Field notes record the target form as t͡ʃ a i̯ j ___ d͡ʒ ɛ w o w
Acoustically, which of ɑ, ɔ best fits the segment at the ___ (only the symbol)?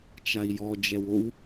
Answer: ɔ